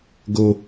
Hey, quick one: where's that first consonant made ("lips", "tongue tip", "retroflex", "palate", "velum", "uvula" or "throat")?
velum